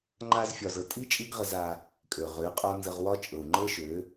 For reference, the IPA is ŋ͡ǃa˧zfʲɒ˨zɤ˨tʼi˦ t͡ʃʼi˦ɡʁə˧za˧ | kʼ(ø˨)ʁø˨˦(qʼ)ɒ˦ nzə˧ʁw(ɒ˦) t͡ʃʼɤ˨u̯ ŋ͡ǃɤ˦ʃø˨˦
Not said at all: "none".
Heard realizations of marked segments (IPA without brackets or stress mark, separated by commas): ø˨, qʼ, ɒ˦